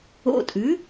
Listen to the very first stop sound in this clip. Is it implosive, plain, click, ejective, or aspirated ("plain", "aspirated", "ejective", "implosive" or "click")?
ejective